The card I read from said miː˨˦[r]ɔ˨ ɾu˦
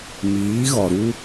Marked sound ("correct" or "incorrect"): incorrect